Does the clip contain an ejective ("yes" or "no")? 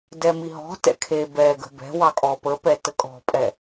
yes